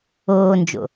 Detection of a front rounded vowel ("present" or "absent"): absent